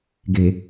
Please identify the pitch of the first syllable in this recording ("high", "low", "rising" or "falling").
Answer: low